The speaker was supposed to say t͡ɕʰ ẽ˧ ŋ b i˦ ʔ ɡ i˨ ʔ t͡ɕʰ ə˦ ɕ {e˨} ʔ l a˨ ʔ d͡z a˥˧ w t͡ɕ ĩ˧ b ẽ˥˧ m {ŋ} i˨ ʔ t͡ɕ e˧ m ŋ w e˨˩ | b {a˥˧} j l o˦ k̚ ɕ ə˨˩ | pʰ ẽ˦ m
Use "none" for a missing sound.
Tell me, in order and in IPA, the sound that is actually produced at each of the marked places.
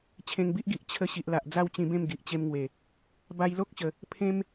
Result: i˨, ɡ, a˧

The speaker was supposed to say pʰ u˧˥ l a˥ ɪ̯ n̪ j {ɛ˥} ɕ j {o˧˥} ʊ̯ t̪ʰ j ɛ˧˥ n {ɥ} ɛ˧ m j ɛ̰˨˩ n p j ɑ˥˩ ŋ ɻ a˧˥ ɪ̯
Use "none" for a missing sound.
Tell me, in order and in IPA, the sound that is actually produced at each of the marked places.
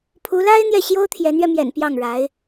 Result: ɛ˥˩, o˥, ɥ

